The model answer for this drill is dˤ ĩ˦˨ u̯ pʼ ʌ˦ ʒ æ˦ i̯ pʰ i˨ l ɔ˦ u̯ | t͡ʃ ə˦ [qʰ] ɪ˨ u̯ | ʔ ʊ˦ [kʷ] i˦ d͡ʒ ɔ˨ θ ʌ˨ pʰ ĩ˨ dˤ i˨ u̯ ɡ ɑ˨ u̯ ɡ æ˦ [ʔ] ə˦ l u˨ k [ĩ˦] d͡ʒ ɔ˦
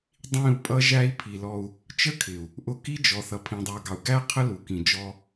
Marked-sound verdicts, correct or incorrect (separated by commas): incorrect, incorrect, incorrect, incorrect